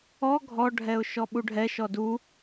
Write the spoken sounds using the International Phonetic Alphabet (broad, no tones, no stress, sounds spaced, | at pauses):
ɔ ɡʱ ɔ ɖʱ ɛ ʊ̯ ʃ ɔ ɓ u ɖʱ ɛ ʃ ɔ d u